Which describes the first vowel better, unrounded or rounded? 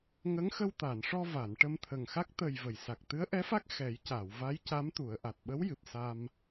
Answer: unrounded